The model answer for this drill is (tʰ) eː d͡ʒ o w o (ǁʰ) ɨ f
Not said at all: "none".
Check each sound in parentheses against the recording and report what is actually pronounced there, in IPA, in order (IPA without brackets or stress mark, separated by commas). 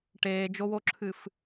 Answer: ʈ, ǁʰ